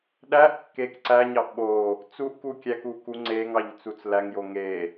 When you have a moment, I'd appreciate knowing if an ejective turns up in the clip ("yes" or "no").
no